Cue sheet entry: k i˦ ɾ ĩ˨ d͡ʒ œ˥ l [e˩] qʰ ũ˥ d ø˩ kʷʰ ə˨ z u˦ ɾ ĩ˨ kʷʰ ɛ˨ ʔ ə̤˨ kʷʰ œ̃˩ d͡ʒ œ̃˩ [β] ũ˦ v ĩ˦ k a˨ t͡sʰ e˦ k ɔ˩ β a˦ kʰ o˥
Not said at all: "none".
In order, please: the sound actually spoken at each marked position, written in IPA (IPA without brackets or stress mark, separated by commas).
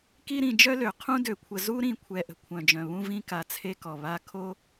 ø˩, β